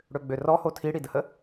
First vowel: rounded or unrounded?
rounded